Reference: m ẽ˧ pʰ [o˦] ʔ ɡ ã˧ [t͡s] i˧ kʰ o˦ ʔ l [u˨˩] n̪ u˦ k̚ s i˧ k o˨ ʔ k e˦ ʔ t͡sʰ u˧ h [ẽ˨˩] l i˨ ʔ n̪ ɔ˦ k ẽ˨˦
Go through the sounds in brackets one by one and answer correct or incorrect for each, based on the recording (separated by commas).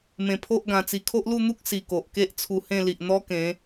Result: correct, correct, incorrect, incorrect